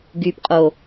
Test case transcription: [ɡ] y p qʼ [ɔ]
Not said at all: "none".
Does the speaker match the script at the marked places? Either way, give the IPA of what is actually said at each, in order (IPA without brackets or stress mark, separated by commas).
ɡ, o